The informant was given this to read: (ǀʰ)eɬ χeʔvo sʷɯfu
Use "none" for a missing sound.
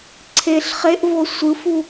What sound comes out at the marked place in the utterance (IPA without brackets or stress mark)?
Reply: ǀʰ